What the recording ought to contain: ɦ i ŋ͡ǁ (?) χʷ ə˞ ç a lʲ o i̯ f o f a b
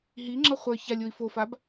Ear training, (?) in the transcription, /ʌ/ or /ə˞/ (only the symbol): ʌ